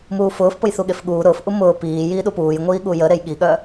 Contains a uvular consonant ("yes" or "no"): no